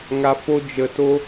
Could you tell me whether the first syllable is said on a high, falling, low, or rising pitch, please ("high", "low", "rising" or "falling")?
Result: low